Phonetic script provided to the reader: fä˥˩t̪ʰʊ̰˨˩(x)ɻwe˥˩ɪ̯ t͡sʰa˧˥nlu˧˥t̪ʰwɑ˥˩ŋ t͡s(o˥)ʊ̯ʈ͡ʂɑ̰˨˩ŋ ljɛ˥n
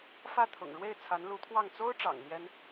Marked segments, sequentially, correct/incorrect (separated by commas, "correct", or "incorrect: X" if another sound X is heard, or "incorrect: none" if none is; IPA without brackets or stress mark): incorrect: ŋ, correct